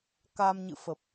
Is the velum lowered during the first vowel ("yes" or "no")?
no